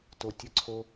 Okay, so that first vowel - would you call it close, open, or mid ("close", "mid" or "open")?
mid